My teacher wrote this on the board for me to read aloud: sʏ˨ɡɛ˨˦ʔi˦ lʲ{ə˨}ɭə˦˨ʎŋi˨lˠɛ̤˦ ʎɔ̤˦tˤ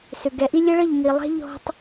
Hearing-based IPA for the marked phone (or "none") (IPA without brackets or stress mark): ə˦